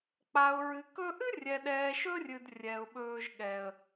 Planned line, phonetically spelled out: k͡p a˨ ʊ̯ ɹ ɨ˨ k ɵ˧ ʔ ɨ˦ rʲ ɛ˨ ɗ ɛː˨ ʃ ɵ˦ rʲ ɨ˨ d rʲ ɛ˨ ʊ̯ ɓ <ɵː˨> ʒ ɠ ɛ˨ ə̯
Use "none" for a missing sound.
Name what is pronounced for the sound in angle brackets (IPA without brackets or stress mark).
ɵː˧